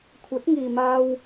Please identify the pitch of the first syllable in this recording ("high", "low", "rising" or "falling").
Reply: rising